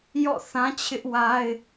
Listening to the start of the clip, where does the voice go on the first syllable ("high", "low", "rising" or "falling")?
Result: falling